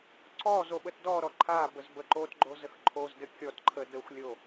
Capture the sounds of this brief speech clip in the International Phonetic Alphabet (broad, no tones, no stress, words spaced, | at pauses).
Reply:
ǀɔ zoɓətdɔɾɔ ǃʰabəz bəǃotɡ͡ǃo zəxǃʰozdɘ kʲɔtǃʰə dəxʷlʲo